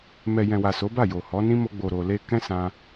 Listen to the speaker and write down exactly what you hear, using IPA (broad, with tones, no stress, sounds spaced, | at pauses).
m ɛ˨ j ɛ̃˨ w a˨ s o˨˦ b a˦˨ j o˨ h ɔ˨˦ n ĩ˦ m o˧ ɡ͡b o˨ ɾ o˨ l e˧ k ɛ̃˦ s ã˧